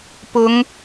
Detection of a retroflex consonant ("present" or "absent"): absent